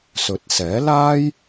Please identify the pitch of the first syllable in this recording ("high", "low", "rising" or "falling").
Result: rising